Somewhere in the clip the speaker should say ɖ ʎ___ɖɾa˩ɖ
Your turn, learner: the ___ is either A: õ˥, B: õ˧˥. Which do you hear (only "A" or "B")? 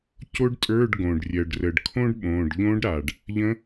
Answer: B